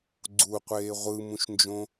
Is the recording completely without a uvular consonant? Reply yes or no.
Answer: no